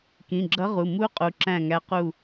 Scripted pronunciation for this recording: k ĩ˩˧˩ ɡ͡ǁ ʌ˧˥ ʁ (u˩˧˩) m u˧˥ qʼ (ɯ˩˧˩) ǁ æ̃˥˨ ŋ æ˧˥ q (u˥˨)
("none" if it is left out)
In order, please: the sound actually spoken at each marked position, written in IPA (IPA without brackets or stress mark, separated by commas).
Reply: u˩˧˩, u˩˧˩, u˥˨